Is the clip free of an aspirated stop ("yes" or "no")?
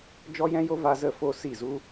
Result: yes